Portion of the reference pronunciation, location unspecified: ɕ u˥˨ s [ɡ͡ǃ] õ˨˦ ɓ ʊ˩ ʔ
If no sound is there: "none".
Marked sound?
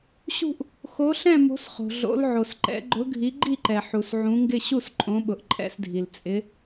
ǃʼ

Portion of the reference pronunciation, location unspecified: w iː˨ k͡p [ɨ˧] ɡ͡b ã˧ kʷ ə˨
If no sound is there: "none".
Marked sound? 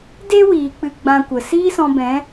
ɨ˧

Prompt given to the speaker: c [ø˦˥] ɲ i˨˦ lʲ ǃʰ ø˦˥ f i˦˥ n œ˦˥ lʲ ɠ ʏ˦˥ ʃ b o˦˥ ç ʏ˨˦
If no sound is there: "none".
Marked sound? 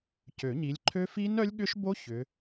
ø˨˩˦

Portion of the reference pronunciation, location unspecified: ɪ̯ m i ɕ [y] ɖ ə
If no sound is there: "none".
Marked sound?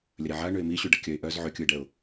y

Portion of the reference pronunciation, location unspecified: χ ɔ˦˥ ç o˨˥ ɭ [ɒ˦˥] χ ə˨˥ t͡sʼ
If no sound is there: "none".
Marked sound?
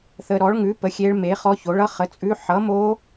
ʌ˦˥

